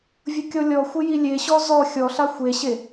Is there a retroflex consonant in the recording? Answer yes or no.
no